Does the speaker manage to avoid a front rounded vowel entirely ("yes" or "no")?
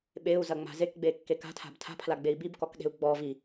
yes